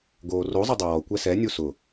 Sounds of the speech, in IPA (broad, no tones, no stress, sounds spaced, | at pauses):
ɡ oː r o zˤ e dˤ o w ɔ kʷ ɛ s ɛ nʲ u s ʊ